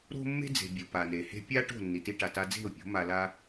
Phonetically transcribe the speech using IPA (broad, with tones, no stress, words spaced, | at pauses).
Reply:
ɾo̤˦mːe̤˦d͡ze̤˨ bʲu˨pa˨ne˨ he̤˧pʲa˦ ʈo̤˦˨ nːi˨ti˦ʈa˨ta˦ d͡ze̤˦˨ʊ̯pʲo̤˨˦ ma˨la˧